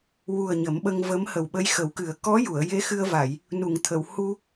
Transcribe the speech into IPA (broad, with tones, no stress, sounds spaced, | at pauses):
w u˨˩ ə̯ ɲ ə˨˩˦ m ɓ ə˧ ŋ v ə˧˥ m h ə˨˩ w ɓ ə˧˥ j x ə˨˩˦ w k ɨ˨˩˦ ə̯ k ɔ˧˥ j u˨˩˨ ə̯ j e˧˥ x ɨ˧ ə̯ v a˨˩˨ j | n u˨˩˨ ŋ t̪ʰ ə˨˩˨ w h u˧